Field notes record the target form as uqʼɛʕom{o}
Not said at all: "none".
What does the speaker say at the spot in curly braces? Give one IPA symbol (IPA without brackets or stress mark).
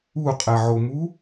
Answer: u